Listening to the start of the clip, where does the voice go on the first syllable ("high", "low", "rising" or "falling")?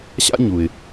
high